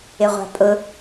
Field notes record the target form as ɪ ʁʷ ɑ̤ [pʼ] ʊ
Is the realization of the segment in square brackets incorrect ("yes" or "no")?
no